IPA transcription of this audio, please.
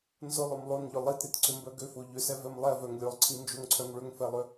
n z ʊ lˠ ʊ m lˠ o n ʎ ʊ lˠ i t ɾ i t ǀ ʏ m b œ ɡ ø f o ʎ ʏ s ɛ v ɛ m lˠ ɛ v œ ŋ lʲ o lˠ ǀʰ i n d͡ʒ o ŋ ǀʰ œ ŋ ɭ ʏ ŋ f ɛ lˠ ʏ

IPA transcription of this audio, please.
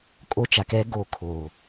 kʼ o˦ t͡ʃ a˨ k ɛ˦ ɡ o˦˨ kʰ o˨

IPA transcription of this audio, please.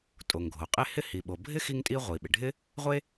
tʼ o˩ ŋ ɡʱ o˩ qʼ e˥ h ɪ˥ h i˩ ɓ o˩ bʱ ɪ˥ x i˥ ŋ tʼ i˥ ʁʷ i˩ ɓ ɪ˩ ɖʱ ɪ˥ | ʁʷ e˥

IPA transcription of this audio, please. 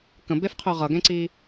k ə̃ b e f qʰ ø ʁ ʌ ɡ ẽ ǀ i

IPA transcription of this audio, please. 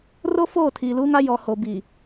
r o˦ f oː˦˨ tʰ iː˨ l uː˦ ŋ a˦ j ɔ˨ h o˨ b i˨

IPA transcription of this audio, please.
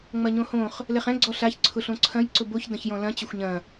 ŋ͡m ɐ ɲ õ h õ χ | l ɛ χ ɛ̃ ɡ͡ǀ ɔ ɬ a ç ǀʰ ʊ ɬ õ ǀʰ ɐ̃ j ǀ ʊ b o ç d ɐ̃ ç j ɔ̃ l ɐ̃ t͡ɕ ɐ xʷ ɲ ɐ̃

